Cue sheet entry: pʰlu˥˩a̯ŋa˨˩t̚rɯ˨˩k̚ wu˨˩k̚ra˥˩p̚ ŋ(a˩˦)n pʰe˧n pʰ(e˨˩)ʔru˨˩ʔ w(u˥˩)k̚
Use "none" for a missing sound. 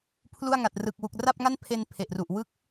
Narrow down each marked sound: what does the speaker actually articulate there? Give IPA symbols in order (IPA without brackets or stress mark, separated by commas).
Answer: a˥˩, e˨˩, ɯ˥˩